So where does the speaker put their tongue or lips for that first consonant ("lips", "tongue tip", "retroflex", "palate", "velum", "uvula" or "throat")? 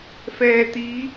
lips